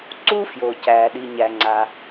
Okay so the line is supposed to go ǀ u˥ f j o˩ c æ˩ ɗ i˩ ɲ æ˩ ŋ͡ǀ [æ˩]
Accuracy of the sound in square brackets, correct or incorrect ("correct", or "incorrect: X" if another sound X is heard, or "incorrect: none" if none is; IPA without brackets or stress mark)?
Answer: incorrect: a˩